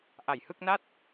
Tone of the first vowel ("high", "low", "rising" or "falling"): low